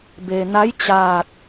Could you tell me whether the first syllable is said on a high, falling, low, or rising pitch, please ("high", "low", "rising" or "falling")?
low